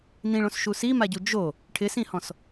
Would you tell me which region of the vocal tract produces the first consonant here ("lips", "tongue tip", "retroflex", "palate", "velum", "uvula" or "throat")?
tongue tip